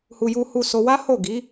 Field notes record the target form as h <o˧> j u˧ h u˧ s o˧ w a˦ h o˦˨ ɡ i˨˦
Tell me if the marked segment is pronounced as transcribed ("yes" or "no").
no